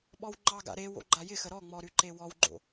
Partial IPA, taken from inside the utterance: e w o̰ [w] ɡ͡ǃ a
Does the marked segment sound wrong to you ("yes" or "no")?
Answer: yes